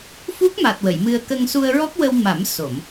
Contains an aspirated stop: no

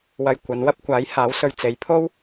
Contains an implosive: no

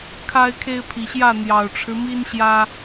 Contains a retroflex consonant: yes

